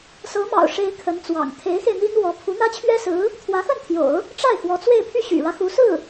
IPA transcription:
s ɤ˧˥ m ɑ̰˨˩ ʊ̯ ʂ e˧˥ ɪ̯ kʰ ə˧˥ n t͡s w ɑ̰˨˩ ŋ t̪ʰ e˧˥ ɪ̯ x e˧ ɪ̯ n̪ i˥ n w ɔ˧˥ pʰ u˧˥ n̪ ä˥ t͡ɕʰ ɥ ɛ˥ s ɹ̩˧˥ | t̪ʰ w ä˧˥ x ə˥˩ n t̪ʰ j o̰˨˩˦ ʊ̯ | ʈ͡ʂ a˥˩ ɪ̯ x w ɔ˧˥ t͡s w e˥˧ ɪ̯ pʰ y˥˩ ɕ y̰˨˩ ɻ ä˦ x u˧˥ s ɹ̩˥˩

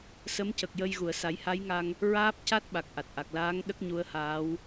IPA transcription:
s ə˧˥ m c ə˨˩ k̚ j ə˧ j ɣ u˨˩˨ ə̯ s a˨˩˦ j h a˧˥ j ŋ a˧ ŋ | ɹ aː˦˥ p̚ c a˦˥ t̚ ɓ a˨˩ k̚ ʔ a˨˩ t̚ ʔ a˨˩ k̚ l aː˧˥ ŋ ɗ ə˦˥ k̚ ɲ u˧˥ ə̯ h aː˧˥ w

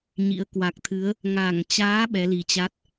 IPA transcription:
ɲ ḭ˧˥ ə̯ k w a˨˩ k̚ t̪ʰ ɨ˨˦ ə̯ | ŋ a˧˩ ŋ t͡ɕ aː˨˦ ɓ ɛ˨˦ l i˨˩ t͡ɕ a˦˥ t̚

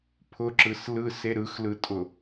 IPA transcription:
pʰ ʊ ǁ ɯ s l ɯ s e ɾ ɯ x l ɯ tʼ ʊ

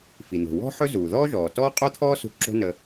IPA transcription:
f i˩ n̪ o̤˩ w ɔ̤˥ ħ ɵ˥ z uː˩ ð ɔː˥ ʒ ɔː˩ t ɔː˥ qʼ o˥ t̪ʰ ɔː˥ s ṳ˧ ǁ o̤˥ n ə˧

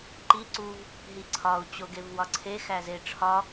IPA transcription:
ǃ i ǀ u v | ɦ i ǀʰ ɒ u̯ t͡ɕ o ɡ e v w ɒ ǀʰ e x æ z e ʈ͡ʂʰ ɒ

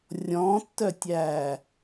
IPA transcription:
rʲ ɔ̃ tː œ tʲ æː

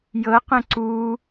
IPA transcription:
j ɤ q ə̃ ǀ u

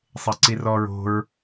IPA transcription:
sˤ e ǀ i r ɔ ɹ o̤ ɹ

